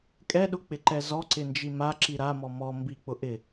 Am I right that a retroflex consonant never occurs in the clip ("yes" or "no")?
yes